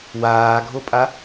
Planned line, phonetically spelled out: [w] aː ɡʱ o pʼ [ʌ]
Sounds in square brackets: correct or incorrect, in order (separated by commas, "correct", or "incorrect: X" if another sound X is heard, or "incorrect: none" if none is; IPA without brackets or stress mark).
correct, incorrect: a